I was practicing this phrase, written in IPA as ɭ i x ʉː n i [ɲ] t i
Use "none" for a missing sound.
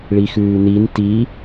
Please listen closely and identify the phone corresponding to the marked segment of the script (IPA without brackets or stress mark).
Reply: n